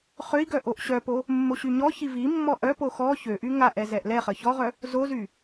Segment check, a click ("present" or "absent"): absent